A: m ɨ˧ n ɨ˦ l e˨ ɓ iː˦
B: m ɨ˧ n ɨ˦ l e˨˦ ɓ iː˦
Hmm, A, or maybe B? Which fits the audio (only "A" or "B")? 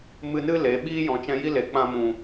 B